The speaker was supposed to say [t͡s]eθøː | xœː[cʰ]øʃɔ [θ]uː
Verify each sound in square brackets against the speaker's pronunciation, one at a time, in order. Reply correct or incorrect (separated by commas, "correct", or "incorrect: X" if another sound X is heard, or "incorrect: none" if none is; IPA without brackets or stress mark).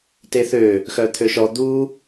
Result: incorrect: t, incorrect: t̪ʰ, incorrect: d̪